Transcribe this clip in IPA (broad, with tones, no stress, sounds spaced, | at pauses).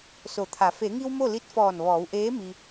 s o˩˧ t̪ʰ a˩˧ f e˩˧ ŋ i˧ w m o˥˨ l i˧˥ t̚ f ɔː˧˩ n ʋ ɔː˩˧ w ʔ eː˧˥ m i˧